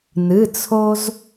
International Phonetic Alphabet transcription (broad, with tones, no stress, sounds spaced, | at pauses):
n ɨ˩˧˩ t͡sʰ o˧ z